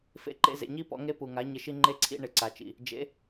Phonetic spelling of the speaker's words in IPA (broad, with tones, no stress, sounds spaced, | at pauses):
f ḛ˧ ǃ ḛ˧ z ḛ˨ ɲ i˦ p ɔ̰˧ ŋ e˦ p u˨ ŋ a˨˦ ɲ ɪ˧ ʃ i˦ ŋ͡ǃ e˦ ǀʰ ḭ˦ ɳ ɪ˨ ǀ a˨ t͡ʃ ḭ˨ | d͡ʒ ḛ˨˦